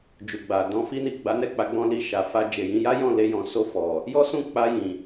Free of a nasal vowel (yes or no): no